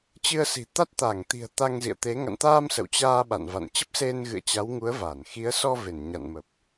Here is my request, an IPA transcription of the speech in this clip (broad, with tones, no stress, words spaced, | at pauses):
t͡ɕɨ˧ə̯si̤˨˩t̪a˦˥t̚ t̪a˧˩ŋt̪i̤˨˩ə̯ t̪a˧ŋzḭ˧˨ə̯t̪e˨˦ ŋa̰˧˨nt̪aː˧m sə̰˧˨wt͡ɕaː˧ ɓa̰˧˨nva̰˧˨n t͡ɕə˦˥p̚se˧nɣɨ̰˧˨ə̯ t͡ɕa˨˦wŋu˨˦ə̯ va˧˩nxi˨˦ə̯ sɔ˧ ve˧˩nɲa̰˧˨nmə˨˩p̚